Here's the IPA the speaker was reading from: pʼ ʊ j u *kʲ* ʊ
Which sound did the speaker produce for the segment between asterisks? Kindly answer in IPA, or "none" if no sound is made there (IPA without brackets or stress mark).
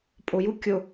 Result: kʲ